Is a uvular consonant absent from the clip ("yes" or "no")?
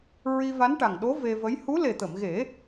yes